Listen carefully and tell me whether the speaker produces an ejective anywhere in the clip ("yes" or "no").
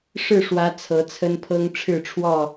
no